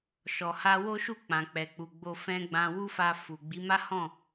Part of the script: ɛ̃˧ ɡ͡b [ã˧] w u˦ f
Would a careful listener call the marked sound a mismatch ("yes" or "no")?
no